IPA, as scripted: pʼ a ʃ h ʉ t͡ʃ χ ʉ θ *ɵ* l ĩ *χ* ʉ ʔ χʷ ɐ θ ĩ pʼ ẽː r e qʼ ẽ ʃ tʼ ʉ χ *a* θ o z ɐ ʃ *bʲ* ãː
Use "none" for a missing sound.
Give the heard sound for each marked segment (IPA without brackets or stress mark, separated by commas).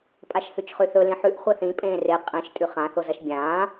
ɵ, ħ, ã, bʲ